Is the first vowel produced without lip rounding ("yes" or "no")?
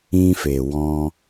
yes